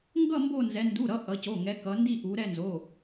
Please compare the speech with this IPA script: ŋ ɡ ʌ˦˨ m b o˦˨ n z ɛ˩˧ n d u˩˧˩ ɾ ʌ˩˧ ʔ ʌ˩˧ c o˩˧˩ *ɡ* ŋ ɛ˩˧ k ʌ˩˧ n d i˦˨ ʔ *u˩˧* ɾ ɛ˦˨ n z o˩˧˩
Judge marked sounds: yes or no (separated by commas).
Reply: no, yes